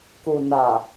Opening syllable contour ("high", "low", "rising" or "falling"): low